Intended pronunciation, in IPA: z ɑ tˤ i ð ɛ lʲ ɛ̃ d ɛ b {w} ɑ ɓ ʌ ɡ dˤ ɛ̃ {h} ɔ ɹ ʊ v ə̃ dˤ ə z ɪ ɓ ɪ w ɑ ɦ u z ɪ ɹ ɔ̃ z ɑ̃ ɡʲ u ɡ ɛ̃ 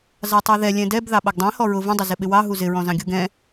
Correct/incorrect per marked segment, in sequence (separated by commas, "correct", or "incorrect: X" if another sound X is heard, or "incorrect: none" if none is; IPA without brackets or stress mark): incorrect: ð, correct